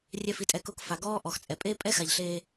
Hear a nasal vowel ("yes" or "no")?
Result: no